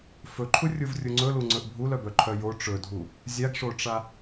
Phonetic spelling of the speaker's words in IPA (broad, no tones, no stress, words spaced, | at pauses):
fɵǃʰurʲuvrʲu ŋ͡ǀɵluŋ͡ǀɵʔ bʱulœbœǃʰœ jo ʈ͡ʂɵdʱu | zʲaɡʂoʈ͡ʂa